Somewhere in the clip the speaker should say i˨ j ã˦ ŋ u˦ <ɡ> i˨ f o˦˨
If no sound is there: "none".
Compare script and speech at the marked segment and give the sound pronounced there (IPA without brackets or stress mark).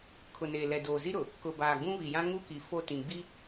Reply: k